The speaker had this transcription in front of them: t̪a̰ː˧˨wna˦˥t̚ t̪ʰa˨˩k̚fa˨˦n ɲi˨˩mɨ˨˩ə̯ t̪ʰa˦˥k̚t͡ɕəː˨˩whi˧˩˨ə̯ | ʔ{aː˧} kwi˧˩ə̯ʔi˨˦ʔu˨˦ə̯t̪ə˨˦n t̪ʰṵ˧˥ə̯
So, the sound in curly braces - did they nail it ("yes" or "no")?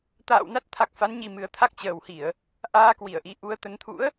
yes